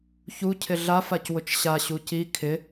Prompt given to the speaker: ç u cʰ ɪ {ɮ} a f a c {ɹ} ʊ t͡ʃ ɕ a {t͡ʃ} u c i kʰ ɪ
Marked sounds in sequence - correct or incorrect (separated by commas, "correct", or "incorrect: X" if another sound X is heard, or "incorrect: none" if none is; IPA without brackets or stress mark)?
correct, incorrect: w, incorrect: ɕ